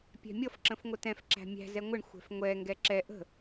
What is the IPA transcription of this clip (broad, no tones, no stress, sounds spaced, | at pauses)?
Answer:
pʲ ɛ̤ mʲ ʌ f ǁ ə̃ f ŋʷ ə t ɛ̃ f ǁ æ̤ mʲ æ̤ z ɛ ŋʷ ɪ ɳ xʷ ɛ̤ f ŋʷ ɛ ŋ ɡ ɛ ǁ ɛ ʔ ə̤